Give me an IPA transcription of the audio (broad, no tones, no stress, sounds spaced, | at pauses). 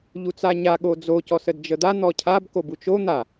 ʎ u t͡s a ɲ a ɠ o d͡z o c ɔ s ə d d͡ʒ ə d̪ a n̪ ɔ cʰ a b k o b u t͡ʃ o n̪ a